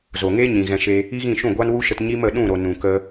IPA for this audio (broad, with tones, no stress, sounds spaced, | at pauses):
z o˨ ŋ e˦ ɲ ĩ˨ ɣ ɛ̃˧ ʃ e˧ | i˦ ɣ ĩ˦˨ ʃ ũ˦˨ ɡʷ a˦ n w u˦ ʃ ə˧ t ɲ i˦ m ə˨˦ ɗ ũ˦˨ ɾ o˨ n ũ˨ k ə˧